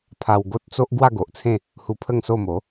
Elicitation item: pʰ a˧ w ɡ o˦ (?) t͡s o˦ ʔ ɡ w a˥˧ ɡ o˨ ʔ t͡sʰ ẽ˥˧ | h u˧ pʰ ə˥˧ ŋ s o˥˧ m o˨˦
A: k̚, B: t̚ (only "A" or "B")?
B